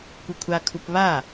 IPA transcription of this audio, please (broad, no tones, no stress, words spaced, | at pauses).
kʷɯkʷʰakʰup βa